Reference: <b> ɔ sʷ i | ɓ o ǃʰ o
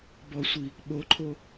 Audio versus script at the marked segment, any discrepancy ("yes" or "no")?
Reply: no